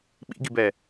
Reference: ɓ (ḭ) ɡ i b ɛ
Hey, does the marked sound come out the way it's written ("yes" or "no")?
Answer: yes